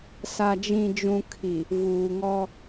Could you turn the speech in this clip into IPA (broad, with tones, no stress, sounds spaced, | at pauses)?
s a˨ d͡ʒ ĩ˨ d͡ʒ ũ˨ kʰ i˨ | v uː˨ ŋ ɔ˦